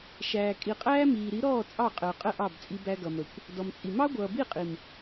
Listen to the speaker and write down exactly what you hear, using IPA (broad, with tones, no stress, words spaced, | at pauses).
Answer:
ʃæː˨kʼi˨qʼæː˧ miː˨ɾi˨˦ɾɔː˦˨ t͡sʼɑ˦˨qʼəː˨qʼə˦˨ ʔɑ˦˨bt͡sʼi˧bæ˧ ɡʌ˨mə˨kʷ | dɔ˨mt͡sʼi˨ mɑ˦ɡʷʌː˨bi˦˨qʼi˨m